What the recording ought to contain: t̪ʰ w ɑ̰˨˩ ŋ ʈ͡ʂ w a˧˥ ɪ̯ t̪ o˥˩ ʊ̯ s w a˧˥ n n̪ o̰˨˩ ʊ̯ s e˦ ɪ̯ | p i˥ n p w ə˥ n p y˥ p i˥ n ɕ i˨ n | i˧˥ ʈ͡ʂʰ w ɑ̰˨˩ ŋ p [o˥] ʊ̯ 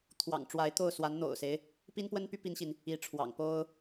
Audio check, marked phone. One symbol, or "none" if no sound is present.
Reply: o˥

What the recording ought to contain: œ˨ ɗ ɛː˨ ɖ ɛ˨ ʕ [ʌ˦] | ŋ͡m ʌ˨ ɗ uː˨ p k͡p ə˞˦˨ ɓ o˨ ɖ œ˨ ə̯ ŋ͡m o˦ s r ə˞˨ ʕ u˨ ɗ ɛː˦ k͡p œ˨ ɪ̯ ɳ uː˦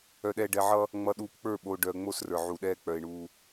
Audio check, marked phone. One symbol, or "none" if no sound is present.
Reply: ʌ˦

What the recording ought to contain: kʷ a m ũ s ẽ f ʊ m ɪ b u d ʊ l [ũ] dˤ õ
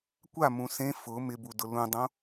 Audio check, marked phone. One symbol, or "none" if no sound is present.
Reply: ũ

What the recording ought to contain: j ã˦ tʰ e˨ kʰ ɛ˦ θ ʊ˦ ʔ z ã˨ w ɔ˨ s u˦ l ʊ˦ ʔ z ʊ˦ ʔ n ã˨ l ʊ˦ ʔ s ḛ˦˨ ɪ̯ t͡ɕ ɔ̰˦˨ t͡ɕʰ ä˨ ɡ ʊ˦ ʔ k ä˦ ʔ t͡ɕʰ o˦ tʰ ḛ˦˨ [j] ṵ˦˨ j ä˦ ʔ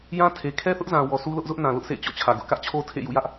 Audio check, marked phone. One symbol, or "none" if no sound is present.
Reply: j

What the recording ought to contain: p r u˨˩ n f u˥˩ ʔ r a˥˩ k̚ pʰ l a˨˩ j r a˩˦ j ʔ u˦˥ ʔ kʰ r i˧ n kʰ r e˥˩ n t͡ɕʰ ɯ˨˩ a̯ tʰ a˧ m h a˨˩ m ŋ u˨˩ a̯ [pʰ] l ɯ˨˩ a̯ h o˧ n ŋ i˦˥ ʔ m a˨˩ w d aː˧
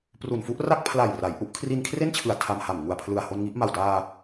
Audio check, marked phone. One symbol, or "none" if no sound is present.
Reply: pʰ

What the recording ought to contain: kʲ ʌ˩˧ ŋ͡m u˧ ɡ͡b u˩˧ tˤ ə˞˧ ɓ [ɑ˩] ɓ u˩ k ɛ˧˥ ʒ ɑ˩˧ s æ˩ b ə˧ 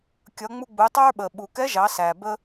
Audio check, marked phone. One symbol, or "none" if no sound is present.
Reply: ə˩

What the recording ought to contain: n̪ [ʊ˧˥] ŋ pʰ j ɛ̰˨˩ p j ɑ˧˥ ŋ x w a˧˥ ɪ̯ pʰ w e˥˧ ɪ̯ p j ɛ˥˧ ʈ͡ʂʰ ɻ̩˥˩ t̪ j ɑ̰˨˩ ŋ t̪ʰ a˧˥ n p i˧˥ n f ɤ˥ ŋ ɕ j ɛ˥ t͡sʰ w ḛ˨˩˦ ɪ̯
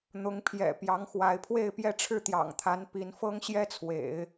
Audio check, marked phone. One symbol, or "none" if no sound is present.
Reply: ʊ˧˥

